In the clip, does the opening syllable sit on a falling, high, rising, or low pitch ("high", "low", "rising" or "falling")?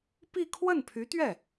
falling